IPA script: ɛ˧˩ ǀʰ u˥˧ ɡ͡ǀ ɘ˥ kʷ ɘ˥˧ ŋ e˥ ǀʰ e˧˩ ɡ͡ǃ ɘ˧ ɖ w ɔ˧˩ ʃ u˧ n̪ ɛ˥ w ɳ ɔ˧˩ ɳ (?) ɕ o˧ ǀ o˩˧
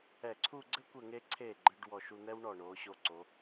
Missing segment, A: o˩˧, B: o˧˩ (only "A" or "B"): A